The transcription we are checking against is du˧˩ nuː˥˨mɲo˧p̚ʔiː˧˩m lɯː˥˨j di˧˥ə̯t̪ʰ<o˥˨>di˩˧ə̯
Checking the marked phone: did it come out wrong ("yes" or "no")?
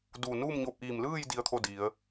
no